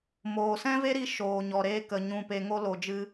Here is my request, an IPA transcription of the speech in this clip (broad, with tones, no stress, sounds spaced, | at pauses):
m oː˨ s ɛ̃˦ v e˦ ɾ i˧ ʃ oː˨ ɲ ɔ˨ ɾ eː˧ k ə˨ ɲ ũ˨ p e˨ ŋ o˦ l o˧ d͡ʒ ɨ˦